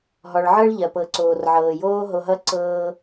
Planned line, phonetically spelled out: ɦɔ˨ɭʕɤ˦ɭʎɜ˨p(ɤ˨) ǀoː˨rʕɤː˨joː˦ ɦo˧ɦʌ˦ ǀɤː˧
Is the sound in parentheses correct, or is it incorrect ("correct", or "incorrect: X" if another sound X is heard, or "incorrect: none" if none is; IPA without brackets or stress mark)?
correct